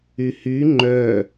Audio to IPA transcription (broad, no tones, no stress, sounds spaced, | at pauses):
y h y ŋ͡ǃ œ